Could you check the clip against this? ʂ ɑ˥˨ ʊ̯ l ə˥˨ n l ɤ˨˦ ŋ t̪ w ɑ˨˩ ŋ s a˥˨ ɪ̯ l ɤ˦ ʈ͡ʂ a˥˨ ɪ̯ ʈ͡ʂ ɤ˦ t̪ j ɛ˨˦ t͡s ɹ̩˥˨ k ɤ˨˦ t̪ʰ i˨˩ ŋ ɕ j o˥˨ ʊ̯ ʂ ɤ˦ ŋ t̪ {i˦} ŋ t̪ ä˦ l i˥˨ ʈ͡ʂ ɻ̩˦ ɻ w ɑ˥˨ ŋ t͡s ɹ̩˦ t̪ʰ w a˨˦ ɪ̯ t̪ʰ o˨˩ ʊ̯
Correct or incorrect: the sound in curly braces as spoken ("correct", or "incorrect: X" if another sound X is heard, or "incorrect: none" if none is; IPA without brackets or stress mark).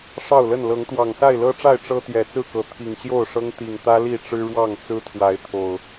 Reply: incorrect: i˨˩